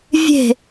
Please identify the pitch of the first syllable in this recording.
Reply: falling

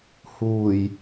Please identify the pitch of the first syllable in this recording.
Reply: low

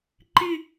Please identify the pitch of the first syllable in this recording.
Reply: falling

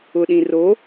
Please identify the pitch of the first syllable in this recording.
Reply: low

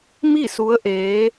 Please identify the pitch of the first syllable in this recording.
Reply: falling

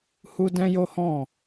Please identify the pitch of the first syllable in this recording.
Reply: high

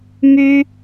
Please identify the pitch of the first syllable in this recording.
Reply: high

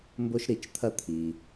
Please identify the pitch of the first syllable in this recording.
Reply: high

